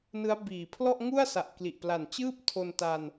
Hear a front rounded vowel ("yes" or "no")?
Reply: no